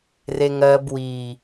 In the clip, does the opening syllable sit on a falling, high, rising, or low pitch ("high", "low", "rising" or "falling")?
low